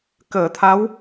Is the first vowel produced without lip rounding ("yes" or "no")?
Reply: yes